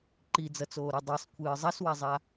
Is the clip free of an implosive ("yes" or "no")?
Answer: yes